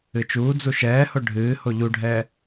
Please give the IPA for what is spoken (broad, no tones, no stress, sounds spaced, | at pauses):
ɨ t͡ʃ uː d͡z u ʃ ɛː h o ɖʱ ɨː h o ʎ u ɖʱ ɛː